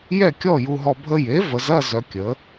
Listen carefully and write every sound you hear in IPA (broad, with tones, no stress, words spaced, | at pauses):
jɛ˥˨kʲɔ˥˨ju˧ɦɔ˧ bʱə˧je˩˥və˩˧zɐ˥˨ zœ˧kʲə˩˥